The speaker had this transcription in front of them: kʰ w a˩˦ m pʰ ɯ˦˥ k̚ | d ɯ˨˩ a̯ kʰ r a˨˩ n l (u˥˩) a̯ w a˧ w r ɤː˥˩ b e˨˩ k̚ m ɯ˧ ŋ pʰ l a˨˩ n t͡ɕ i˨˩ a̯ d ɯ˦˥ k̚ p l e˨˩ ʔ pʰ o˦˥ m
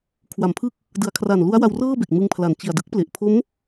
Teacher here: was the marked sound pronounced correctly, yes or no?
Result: no